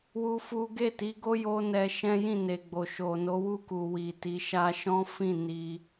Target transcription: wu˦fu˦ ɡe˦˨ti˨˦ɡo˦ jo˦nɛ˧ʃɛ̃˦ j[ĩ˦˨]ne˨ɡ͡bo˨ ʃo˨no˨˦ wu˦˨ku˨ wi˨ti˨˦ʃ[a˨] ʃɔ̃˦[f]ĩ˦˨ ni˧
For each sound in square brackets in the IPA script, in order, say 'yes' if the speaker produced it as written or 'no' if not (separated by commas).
yes, no, yes